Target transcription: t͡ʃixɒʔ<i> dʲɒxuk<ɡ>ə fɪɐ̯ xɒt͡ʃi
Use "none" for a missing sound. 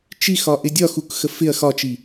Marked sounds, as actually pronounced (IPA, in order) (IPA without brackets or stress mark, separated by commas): ɪ, x